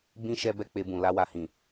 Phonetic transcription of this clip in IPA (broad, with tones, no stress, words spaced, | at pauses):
bĩ˦ ʃɛ˦bɛ˦ k͡pe˧bũ˨ la˧wa˨hĩ˨